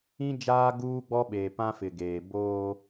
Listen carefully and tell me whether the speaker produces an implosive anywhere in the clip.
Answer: yes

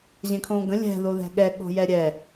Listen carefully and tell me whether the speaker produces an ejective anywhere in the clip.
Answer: no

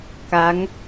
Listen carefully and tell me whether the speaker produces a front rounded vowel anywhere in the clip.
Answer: no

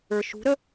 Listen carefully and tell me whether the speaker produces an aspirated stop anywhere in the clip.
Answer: no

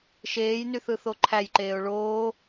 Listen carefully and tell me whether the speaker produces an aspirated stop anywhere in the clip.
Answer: yes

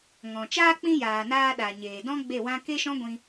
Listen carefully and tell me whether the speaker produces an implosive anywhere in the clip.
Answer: yes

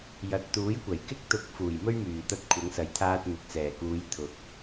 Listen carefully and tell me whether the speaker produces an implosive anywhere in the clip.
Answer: no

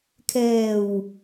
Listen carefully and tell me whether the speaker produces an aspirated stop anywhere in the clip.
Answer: yes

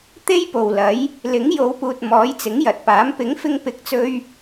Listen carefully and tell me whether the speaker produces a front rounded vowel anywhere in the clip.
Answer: no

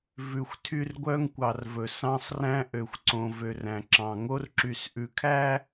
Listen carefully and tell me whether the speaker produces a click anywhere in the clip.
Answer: yes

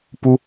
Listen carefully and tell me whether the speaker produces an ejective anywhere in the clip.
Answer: no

